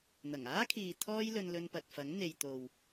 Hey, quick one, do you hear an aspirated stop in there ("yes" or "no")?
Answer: yes